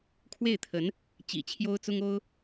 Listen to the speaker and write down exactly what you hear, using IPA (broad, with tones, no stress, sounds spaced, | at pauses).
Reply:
kʰ w e˥˩ ɪ̯ t̪ʰ ə˧˥ n | t͡ɕ ḭ˨˩ t͡ɕʰ j o˥ ʊ̯ t͡s ʊ˥ ŋ o˥ ʊ̯